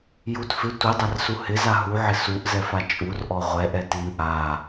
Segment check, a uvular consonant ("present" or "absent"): present